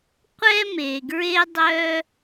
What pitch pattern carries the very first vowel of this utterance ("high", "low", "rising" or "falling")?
high